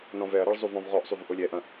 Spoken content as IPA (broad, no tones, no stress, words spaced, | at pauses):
nɔ̃vɛɐ̯ɾɐɭ zˤuvɔ̃vʁɔʔsˤyv ʔolʲɛʔɐ̃